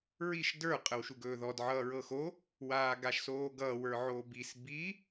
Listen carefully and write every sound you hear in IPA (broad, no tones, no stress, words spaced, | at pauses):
ɹiʃ də˞ qʼəwʃuɡɵːðɔd ʕʌːɹɤxo | waːɡaʃsoːɡʌːw ə˞ʕobis bi